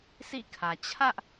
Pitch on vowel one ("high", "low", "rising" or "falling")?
falling